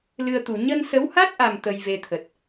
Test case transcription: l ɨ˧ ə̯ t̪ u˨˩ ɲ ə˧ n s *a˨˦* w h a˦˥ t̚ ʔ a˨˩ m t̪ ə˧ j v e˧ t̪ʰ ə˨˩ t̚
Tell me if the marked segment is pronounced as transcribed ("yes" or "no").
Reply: no